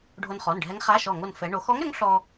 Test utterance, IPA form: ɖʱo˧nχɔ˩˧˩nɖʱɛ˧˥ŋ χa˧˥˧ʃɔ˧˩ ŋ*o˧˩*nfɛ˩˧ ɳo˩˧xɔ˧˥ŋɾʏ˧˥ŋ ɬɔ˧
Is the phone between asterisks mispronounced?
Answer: no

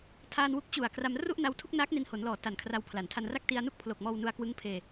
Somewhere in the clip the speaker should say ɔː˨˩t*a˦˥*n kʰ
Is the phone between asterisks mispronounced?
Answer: yes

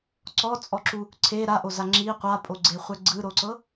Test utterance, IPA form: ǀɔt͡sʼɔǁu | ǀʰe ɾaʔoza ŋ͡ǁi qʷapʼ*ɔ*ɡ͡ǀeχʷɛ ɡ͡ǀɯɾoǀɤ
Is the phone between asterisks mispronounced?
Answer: yes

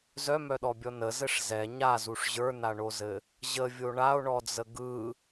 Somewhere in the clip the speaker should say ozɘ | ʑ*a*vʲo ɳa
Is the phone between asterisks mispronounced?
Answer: yes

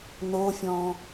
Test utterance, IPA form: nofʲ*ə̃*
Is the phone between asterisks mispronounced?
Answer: yes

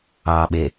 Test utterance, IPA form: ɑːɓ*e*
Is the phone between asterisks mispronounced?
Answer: no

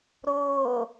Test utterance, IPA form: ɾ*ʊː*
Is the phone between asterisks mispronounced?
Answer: no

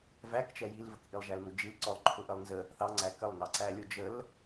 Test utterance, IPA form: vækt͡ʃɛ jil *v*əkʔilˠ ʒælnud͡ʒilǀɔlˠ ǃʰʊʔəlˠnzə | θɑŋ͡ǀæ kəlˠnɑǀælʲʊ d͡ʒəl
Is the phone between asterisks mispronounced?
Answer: no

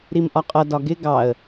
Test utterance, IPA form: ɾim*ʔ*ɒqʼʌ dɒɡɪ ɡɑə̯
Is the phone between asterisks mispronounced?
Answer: no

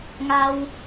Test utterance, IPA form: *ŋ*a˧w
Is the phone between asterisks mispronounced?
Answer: no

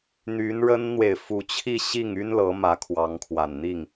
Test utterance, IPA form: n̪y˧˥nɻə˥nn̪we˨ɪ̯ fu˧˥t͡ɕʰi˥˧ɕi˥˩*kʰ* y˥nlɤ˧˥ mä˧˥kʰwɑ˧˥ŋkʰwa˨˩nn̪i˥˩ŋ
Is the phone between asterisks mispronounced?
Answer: yes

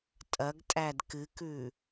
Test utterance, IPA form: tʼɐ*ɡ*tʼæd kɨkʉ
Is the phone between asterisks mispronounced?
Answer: no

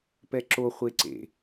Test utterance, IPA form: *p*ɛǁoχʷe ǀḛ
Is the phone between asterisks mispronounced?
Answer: no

